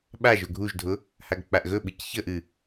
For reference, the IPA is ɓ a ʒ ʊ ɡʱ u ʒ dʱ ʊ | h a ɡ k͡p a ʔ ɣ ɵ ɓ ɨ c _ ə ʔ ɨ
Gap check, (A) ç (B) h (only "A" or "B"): A